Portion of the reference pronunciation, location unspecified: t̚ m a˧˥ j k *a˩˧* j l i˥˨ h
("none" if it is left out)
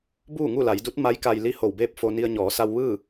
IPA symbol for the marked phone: a˧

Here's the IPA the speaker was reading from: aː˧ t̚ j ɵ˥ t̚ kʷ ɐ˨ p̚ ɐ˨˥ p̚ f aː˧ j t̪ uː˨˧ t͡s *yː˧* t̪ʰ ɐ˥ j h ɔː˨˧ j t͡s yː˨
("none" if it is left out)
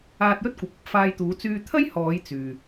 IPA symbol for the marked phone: yː˧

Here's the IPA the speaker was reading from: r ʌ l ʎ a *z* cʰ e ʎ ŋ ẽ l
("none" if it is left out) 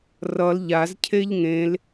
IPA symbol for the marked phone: z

